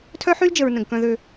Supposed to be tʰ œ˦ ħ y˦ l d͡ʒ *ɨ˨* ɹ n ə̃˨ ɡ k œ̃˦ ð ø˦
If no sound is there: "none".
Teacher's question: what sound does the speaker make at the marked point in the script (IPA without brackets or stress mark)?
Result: ə˨